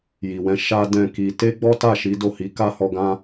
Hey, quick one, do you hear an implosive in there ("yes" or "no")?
no